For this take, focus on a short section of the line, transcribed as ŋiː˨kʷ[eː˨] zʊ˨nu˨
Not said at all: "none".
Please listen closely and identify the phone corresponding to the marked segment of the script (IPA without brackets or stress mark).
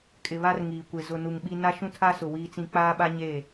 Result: e˨